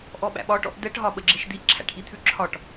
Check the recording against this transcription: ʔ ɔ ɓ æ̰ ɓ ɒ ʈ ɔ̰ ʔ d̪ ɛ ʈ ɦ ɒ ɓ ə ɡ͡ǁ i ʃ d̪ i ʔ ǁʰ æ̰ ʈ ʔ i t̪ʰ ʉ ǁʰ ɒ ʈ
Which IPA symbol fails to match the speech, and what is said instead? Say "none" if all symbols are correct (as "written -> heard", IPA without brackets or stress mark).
none